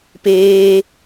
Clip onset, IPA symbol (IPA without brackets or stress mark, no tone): p